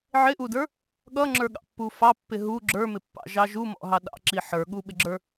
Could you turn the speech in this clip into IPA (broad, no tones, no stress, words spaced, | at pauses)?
ʕɪʔudə˞ | ɠʌŋ͡ǁə˞ɠɑ̰pːu fɑpːɪ ɦu ɡ͡ǁə˞mɪpːɑ̰ʒɑ ʒumɔ̰ɦɑ ɗɑ̰ǁi ħə˞ɠuɓɪɡ͡ǁə˞